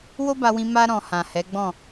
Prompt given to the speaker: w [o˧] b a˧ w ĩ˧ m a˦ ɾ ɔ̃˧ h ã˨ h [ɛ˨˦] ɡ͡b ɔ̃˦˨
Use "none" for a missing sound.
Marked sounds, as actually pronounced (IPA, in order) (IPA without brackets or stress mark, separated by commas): o˦, ɛ˨˦